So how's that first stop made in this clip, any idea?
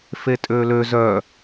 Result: ejective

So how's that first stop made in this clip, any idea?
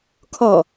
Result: aspirated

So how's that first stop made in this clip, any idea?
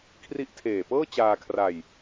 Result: aspirated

